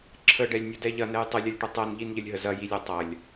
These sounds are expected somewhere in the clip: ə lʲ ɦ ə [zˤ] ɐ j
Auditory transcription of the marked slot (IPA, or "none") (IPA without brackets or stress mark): z